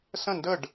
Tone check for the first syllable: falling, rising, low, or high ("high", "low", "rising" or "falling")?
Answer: falling